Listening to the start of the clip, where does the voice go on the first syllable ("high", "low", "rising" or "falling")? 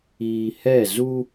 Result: low